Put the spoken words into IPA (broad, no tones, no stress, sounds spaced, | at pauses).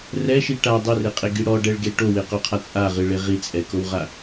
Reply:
r ɛ ʃ i ʈ a dˤ ɘ r e qʼ e ɡ i ɽ ɔ ɖ ɛ ɭ ɡ e ʈ o w e q o qʰ a t͡sʼ a ʁ ɨ ɭ e ʁ i t͡sʼ ɛ k o w ʁ a